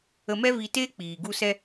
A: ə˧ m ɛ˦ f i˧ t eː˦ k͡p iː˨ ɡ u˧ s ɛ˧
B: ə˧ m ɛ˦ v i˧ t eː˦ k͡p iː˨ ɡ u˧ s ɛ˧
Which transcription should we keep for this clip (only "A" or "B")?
B